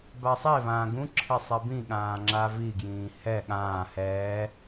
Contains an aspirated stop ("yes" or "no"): yes